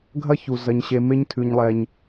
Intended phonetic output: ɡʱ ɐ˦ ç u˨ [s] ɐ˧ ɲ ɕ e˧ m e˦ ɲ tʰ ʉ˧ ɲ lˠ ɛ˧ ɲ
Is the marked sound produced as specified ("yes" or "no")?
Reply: no